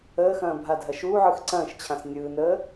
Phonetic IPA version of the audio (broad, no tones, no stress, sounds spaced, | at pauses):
əː x ɐ̃ː bʱ a dʱ ɐ ʃ uː ʕ ɯ x ǀ ɐ̃ː ʃ t͡ɕʰ ã s nʲ ɯː n əː